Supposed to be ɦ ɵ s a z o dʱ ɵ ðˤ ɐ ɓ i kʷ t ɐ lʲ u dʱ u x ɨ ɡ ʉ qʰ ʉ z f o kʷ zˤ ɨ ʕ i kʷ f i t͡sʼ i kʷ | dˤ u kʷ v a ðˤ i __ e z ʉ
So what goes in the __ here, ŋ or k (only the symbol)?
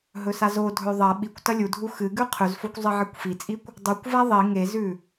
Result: ŋ